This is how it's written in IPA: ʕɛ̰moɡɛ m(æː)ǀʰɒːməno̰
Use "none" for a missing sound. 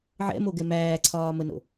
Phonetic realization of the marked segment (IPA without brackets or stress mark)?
æː